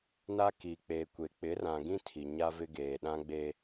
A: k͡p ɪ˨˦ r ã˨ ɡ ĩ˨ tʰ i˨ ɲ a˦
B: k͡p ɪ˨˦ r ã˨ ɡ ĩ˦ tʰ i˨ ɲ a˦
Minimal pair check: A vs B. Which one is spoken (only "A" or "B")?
B